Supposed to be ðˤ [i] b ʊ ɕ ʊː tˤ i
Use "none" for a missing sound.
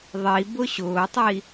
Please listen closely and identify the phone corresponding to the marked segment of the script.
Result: i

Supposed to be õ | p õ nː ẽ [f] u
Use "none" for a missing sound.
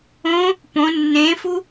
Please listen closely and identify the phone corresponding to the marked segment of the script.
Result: f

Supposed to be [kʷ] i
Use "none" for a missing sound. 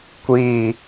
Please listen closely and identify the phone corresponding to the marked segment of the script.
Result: kʷ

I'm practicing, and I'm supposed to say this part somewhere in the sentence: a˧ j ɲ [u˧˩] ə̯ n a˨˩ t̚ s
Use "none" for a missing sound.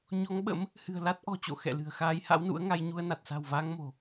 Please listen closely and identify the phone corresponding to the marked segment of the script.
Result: u˧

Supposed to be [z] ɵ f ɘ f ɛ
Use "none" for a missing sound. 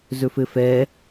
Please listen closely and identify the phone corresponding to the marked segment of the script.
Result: z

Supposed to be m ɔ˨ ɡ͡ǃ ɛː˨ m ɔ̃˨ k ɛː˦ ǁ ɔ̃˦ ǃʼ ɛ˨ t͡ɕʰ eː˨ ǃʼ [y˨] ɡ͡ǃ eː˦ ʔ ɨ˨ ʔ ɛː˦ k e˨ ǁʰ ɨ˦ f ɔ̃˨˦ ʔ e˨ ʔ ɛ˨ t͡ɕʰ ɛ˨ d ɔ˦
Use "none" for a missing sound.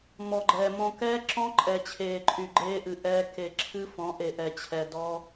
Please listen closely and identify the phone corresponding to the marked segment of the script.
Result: y˨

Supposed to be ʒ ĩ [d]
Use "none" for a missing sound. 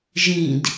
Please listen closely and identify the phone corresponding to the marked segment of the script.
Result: d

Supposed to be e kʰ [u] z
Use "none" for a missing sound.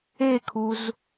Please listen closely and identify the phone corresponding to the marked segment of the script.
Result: u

